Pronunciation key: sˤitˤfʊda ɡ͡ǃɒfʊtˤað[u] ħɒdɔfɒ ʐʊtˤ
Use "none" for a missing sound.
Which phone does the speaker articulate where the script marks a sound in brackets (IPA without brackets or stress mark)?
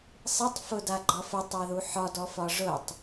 u